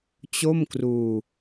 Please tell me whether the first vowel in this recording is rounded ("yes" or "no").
yes